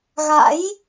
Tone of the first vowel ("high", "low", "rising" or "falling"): rising